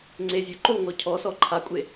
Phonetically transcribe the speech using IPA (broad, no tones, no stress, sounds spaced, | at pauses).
ŋ͡ǀ e zʲ o ǃ o ŋ ɔ cʰ ɔ s ɔ ǃʰ a kʷʼ e